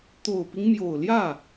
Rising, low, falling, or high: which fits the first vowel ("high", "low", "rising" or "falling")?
low